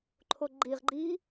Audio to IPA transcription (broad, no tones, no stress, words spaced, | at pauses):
ǃʰoɡ͡ǃiʁɡ͡ǃiː